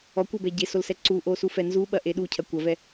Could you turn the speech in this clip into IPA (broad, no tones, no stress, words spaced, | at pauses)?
ɔkʷɘbɛ ɟesolsɛ ǀuʔosufɛ nzuɓɐʔe ɗucʰɐ kʷɐvɛ